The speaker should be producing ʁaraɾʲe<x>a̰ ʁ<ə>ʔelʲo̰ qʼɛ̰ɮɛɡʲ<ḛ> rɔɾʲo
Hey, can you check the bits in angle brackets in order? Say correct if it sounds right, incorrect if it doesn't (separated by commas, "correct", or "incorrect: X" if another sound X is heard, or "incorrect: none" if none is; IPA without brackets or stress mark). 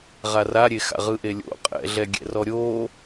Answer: correct, incorrect: ɯ, incorrect: ɛ̰